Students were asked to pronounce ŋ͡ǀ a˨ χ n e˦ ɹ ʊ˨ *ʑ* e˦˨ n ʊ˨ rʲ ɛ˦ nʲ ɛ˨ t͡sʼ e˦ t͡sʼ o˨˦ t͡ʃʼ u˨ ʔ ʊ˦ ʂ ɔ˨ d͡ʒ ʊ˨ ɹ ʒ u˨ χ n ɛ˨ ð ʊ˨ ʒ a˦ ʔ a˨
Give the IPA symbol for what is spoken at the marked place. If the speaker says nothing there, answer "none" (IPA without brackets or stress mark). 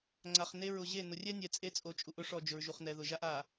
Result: ʑ